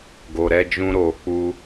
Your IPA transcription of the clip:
ɡ o˧ ɾ ɛ˦ d͡ʒ ũ˦ ɾ o˧ k͡p u˦

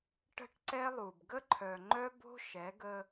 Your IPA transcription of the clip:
ʈ ə̤˦ ʈ ǀ ɛ˦ lˠ u˨ b ɡ ə˦ ǃʰ œ˨ ŋ͡ǃ œ˦ b o̤˦ ʃ ɛ˨˦ ɡ ə˦

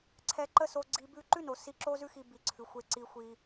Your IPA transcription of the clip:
ǀʰ ɛ˧ ǃ ə˦ s o˧ ɡ͡ǀ i˧ b ʉ˦ ǃ ʉ˦ n o˨ s i˧ ǁ o˦ z ʉ˦ x i˧ b i˨ ǀʰ ʉ˨ xʷ e˧ ǀ i˧ xʷ i˧

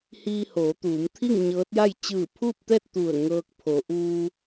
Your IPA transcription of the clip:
h iː˧ h oː˩˧ t̪ uː˩˧ m t̪ʰ i˥˨ ŋ ɲ ɤː˧˥ t̚ j a˥˨ j t͡ɕ ɯː˧˩ pʰ uː˥˨ p̚ t̪ ɛː˥˨ t̚ t̪ u˧˩ ə̯ ŋ ɤː˧ k̚ pʰ o˩˧ ʔ uː˧

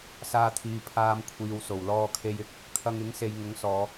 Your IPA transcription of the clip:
s aː˧ t̪ʰ iː˨ pʰ aː˧ m kʷʰ iː˨ w s o˨˩ w l ɔː˧ kʰ e˧ j ɪ˥ k̚ | kʰ ɐ˧ ŋ ɪ˨˥ ŋ s e˨ j ŋ ʊ˨˥ ŋ s ɔː˨˧

